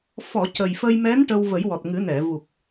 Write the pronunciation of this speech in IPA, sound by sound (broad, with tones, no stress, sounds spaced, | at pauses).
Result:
f ɔ˨˩˨ c ə˨˩ j f əː˧ j m ɛ˧˥ n ʈ ə˧ w v ə˨˩˦ j w ɔ˨˩ t̚ ŋ ɨ˨˩˦ n ɛ˨˩˨ v u˨˩ k̚